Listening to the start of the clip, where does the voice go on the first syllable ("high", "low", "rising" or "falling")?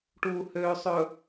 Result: low